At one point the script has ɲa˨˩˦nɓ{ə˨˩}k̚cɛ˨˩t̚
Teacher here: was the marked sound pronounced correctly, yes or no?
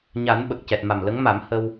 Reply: yes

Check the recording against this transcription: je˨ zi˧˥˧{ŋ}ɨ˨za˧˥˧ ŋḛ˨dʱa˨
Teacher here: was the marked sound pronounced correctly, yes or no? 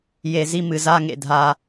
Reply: no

